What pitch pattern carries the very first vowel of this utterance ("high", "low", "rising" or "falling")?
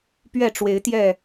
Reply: falling